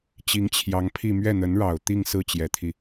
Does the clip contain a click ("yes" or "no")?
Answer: no